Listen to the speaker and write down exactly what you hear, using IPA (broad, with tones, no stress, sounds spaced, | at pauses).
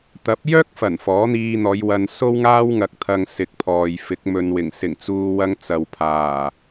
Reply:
t̪ ɐ˨˥ p̚ j œː˥ k̚ f ɐ˨˩ n f ɔː˨˥ n̪ iː˧ n̪ ɔː˨˧ j w ɐ˧ n s o˥ w ŋ aː˥ w ŋ ɐ˨ k̚ t̪ʰ ɐ˨ ŋ s ɪ˨ k̚ pʰ ɔː˨ j f ɪ˨˥ k̚ m ɵ˨ n w ɪ˨˩ ŋ s ɪ˨˩ ŋ t͡s uː˧ w ɐ˧ ŋ t͡s ɐ˨ w pʰ aː˨˩